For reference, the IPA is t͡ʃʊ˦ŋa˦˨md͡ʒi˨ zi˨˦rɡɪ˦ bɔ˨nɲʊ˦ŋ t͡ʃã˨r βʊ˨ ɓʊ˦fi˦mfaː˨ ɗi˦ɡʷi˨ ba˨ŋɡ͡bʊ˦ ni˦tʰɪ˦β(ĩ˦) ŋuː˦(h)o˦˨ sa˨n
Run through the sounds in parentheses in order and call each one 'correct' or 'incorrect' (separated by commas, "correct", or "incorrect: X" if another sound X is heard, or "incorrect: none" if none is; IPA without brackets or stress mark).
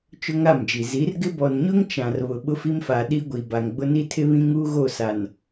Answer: correct, incorrect: ɣ